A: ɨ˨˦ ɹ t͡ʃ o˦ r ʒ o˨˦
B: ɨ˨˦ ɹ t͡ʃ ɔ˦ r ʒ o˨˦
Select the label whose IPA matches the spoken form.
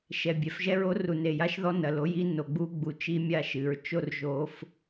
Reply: A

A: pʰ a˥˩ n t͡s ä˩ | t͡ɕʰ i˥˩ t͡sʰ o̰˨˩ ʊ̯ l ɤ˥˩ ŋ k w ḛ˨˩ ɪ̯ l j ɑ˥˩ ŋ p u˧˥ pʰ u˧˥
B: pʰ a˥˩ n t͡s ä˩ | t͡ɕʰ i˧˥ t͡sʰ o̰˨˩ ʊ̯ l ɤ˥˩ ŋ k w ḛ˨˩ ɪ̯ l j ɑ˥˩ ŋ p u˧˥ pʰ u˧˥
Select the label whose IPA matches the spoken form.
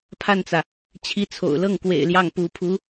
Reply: B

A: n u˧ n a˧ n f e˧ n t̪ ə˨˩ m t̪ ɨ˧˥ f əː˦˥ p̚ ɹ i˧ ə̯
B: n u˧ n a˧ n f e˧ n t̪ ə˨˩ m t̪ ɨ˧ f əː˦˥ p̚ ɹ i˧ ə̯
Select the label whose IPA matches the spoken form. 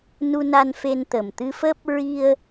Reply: B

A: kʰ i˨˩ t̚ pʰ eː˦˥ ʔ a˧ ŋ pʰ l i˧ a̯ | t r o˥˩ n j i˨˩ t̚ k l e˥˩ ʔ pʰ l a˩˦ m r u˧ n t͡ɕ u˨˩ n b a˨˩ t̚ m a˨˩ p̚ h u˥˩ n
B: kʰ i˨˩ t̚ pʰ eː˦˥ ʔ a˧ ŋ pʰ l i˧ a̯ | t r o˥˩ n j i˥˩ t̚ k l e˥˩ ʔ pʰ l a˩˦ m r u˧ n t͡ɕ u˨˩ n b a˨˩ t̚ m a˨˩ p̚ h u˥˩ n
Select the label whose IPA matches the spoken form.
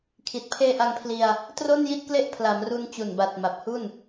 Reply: B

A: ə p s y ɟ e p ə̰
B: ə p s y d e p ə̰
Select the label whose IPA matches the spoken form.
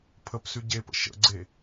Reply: A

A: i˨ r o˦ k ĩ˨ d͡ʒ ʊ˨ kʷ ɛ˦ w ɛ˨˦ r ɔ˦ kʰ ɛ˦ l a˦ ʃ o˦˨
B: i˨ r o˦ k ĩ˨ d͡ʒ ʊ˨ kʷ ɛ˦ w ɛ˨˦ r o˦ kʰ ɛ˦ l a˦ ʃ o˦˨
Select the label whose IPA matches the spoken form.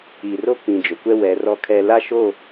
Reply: A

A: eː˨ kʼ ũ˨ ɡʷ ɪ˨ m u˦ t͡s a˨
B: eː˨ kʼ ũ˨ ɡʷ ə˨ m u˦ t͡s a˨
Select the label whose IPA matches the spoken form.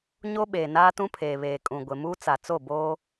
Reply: A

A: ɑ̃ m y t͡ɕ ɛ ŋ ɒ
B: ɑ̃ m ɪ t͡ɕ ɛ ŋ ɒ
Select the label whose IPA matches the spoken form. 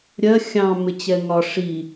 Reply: B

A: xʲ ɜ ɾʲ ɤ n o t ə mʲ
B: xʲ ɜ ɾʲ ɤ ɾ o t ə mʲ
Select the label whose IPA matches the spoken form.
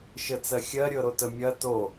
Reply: B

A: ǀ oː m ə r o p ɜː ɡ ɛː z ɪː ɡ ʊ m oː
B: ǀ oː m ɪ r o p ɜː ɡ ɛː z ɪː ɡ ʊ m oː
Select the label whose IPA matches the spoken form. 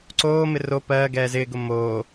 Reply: B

